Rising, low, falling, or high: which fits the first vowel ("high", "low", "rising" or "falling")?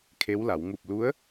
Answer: rising